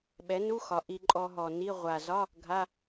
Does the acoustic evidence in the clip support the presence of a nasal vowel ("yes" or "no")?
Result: no